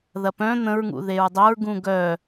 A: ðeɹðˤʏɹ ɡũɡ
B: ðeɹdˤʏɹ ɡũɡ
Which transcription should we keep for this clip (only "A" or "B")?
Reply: B